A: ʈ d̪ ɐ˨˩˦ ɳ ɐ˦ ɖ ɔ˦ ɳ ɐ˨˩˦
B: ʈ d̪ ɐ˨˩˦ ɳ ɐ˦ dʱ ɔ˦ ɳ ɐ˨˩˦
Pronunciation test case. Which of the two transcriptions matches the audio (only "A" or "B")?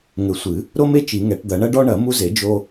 A